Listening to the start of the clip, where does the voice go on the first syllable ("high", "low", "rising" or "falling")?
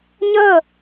falling